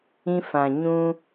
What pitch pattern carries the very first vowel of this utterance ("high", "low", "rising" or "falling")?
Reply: high